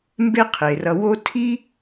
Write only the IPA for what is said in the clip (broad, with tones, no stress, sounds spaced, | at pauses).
m b e˦ qʰ e˩ r ʌ˨ w o˦ tʰ i˥